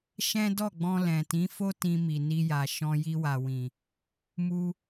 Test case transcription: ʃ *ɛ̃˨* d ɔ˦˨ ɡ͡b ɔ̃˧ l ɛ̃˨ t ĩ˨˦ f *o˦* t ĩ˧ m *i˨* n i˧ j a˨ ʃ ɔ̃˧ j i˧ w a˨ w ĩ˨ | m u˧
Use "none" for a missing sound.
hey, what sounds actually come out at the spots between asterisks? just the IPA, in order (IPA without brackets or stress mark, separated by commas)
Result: ɛ̃˦, o˦, i˨